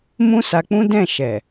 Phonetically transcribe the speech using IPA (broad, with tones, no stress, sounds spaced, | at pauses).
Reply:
m ũ˦ s a˧ k͡p ũ˦ d ɛ̃˦˨ ʃ ɛ˨